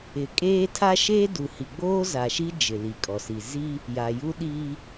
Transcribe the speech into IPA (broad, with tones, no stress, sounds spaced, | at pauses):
ɪ˨ kʼ eː˦ tʰ a˦ ʃ eː˦ d u˨ h i˨ ɡ͡b oː˦ z a˨ ʃ i˦ d͡ʒ ɪ˨ l i˨ kʼ ɔ˨ s i˨ z i˦ | j a˨ j u˦ ɗ iː˦